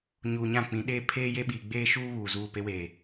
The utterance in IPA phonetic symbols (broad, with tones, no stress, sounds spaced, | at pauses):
ɲ uː˨ ɲ ã˦˨ k͡p ĩ˨˦ ɗ eː˦ pʰ eː˦ j e˦ ɓ iː˨ ɡ͡b eː˦ ʃ uː˦ β uː˨ z uː˦˨ p e˦ w eː˨